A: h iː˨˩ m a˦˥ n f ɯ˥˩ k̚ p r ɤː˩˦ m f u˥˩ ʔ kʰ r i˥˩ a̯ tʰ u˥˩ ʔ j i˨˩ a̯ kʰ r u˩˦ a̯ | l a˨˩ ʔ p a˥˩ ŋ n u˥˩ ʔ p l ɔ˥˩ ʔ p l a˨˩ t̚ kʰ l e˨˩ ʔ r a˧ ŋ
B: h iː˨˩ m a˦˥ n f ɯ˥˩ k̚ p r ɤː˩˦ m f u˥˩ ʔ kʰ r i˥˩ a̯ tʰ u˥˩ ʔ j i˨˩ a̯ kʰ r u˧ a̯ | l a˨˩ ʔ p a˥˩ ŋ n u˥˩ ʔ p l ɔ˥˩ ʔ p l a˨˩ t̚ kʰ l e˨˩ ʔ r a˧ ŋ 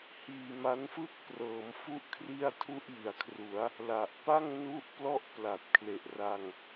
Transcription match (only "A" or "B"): A